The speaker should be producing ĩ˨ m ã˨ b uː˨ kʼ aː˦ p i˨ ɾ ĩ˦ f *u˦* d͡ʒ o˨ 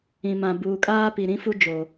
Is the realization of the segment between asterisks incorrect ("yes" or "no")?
no